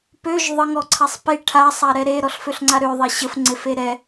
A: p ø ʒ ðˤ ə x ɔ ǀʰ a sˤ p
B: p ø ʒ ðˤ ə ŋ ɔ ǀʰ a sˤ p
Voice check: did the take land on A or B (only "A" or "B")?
B